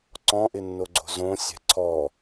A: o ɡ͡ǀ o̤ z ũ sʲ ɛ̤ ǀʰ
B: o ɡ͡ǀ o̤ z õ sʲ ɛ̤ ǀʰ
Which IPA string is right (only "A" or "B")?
B